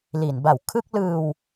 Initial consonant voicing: voiced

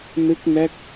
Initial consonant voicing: voiced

